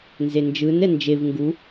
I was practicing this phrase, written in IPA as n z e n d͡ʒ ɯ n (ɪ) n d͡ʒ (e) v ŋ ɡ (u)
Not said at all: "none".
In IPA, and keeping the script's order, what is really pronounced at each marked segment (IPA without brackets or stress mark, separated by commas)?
ɛ, e, u